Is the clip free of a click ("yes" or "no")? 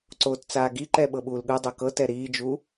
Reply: no